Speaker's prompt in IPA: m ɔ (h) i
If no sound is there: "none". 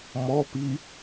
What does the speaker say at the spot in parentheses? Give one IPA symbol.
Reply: p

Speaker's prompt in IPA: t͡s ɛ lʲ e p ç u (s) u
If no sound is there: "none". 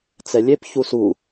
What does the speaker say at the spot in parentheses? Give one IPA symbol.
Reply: s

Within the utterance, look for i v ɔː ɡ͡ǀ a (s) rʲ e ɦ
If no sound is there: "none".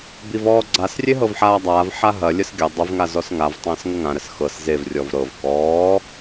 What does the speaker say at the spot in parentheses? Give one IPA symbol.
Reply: s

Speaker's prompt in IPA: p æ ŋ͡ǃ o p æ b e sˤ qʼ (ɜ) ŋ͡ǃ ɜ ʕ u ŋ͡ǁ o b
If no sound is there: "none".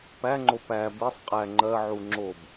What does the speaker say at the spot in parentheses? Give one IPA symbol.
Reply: æ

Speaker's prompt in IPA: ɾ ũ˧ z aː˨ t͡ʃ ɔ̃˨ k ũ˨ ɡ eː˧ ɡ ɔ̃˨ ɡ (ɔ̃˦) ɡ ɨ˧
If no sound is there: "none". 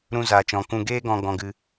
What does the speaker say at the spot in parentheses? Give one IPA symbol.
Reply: ɔ̃˧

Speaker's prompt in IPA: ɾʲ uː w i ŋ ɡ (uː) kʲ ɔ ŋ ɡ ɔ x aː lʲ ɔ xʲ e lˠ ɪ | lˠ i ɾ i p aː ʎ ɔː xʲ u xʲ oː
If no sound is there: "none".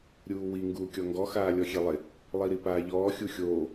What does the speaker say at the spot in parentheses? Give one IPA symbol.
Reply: uː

